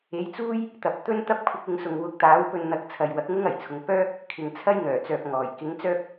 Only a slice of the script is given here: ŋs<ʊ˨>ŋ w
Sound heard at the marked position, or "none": ʊ˨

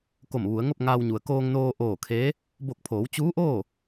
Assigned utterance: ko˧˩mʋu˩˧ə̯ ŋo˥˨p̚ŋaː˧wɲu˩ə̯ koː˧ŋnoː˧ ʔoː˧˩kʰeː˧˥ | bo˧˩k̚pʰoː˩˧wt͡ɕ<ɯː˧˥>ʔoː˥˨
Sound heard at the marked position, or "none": uː˧˥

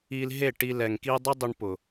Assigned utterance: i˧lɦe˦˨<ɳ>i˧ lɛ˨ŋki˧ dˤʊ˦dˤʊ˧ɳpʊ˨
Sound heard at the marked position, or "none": ʈ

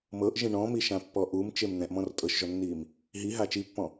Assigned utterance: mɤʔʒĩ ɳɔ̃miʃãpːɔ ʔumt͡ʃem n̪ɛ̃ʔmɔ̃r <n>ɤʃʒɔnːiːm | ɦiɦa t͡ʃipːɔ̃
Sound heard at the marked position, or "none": tʼ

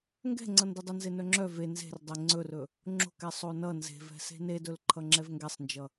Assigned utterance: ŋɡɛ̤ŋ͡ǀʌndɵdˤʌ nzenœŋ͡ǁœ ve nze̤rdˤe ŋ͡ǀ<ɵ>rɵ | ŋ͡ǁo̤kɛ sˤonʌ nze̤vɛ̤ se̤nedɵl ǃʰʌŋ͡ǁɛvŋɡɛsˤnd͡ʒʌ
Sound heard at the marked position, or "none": ɵ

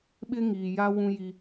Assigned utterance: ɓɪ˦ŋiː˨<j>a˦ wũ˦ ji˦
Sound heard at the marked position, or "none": j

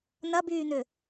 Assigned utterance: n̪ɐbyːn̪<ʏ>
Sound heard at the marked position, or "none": ʏ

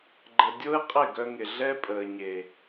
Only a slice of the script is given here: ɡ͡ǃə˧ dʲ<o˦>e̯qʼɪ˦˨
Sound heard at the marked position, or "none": o˦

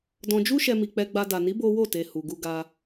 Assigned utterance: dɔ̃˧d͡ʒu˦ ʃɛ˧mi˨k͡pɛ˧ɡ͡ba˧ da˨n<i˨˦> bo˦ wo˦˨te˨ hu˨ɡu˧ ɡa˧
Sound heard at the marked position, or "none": i˨˦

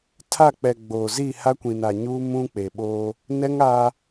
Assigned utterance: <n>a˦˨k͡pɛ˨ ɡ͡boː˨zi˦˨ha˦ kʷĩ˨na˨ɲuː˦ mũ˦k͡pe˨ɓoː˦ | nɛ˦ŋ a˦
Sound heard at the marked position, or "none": tʰ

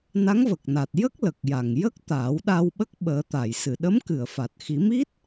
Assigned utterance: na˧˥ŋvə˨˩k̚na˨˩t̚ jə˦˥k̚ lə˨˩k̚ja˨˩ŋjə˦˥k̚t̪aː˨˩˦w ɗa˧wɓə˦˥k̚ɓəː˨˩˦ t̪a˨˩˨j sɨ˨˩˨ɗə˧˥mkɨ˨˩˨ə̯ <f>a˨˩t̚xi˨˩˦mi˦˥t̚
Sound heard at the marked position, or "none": f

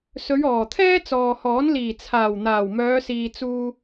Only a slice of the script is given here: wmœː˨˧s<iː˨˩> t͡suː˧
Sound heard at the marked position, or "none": iː˨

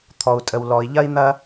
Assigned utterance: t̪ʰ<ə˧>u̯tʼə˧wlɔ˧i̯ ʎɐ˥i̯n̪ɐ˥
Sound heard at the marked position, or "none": ɔ˧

